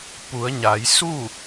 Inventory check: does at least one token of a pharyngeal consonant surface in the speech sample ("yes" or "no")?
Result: no